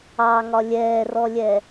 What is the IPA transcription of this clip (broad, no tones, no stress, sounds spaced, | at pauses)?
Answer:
ɑ ŋ ɒ lʲ ɛː r ɔ lʲ ɛ